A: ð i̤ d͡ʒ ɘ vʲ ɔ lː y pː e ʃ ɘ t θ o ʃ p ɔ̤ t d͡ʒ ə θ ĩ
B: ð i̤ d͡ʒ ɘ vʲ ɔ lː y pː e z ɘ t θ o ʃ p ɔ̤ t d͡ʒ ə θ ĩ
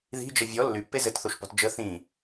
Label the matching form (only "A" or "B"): B